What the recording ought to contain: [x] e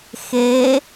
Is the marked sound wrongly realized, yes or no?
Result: no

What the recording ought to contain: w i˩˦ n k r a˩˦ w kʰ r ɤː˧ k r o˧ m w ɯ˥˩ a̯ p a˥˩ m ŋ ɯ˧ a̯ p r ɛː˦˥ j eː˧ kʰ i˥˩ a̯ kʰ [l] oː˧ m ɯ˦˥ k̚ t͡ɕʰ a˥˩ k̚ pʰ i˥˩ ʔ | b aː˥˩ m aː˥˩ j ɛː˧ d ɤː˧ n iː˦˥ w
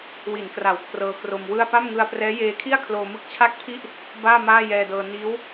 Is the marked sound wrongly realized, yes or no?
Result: no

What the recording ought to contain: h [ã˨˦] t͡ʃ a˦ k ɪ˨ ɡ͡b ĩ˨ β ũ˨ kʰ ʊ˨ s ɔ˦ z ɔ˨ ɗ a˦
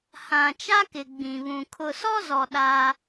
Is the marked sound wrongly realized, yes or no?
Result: yes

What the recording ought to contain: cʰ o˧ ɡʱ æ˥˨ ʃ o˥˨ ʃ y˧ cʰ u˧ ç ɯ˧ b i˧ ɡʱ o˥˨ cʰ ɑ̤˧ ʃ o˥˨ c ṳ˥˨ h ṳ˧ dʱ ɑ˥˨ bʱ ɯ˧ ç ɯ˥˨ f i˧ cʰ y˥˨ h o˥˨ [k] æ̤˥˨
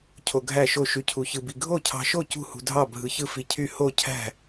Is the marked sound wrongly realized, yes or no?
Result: yes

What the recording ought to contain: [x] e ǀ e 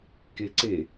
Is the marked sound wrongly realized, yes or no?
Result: yes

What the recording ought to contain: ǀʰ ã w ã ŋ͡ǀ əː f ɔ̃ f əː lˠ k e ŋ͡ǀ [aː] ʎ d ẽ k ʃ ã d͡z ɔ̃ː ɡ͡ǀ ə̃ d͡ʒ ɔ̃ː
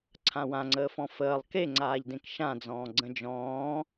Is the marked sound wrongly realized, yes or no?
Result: no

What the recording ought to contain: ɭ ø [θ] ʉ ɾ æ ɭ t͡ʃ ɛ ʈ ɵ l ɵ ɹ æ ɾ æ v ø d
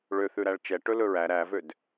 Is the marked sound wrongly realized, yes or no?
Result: no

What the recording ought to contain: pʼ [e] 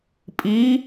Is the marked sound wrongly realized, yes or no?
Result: yes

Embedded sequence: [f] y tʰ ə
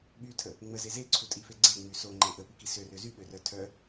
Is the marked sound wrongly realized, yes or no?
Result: yes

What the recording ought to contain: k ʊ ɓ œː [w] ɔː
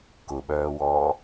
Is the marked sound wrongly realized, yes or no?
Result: no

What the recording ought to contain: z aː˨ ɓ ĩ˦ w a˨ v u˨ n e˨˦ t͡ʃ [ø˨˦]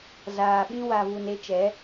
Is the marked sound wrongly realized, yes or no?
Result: yes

